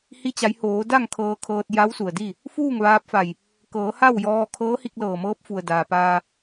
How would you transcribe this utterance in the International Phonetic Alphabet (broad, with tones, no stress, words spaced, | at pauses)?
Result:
hi˧t͡ɕa˩˧jhoː˩˧ da˥˨ŋ kʰɤː˧kʰɤː˧t̚ ja˧˥wsu˩ə̯di˥˨ | fuː˥˨ŋ ʋaː˧p̚fa˧˩j | kɤː˩˧ha˥˨wjɔː˧ kʰɤː˧˥hi˧k̚lɤː˧˩mɤː˧˥p̚ fu˩ə̯daː˩paː˧